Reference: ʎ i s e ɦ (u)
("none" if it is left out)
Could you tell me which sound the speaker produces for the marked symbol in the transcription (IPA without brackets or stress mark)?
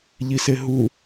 u